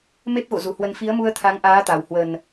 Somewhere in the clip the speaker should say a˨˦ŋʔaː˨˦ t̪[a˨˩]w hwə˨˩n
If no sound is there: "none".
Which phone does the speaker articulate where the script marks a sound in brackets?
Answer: a˨˩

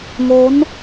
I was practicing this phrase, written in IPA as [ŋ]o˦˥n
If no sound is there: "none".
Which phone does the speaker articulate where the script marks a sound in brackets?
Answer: ŋ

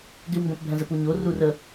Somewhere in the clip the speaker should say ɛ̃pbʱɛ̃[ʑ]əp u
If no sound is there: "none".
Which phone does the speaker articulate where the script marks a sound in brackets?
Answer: z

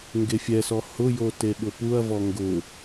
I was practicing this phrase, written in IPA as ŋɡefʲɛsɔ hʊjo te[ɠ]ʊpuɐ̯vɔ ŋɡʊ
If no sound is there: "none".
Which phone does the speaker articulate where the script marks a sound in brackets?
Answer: ɠ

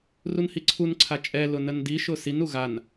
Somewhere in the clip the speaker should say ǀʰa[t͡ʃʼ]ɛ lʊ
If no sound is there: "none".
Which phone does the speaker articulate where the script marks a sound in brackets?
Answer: t͡ʃʼ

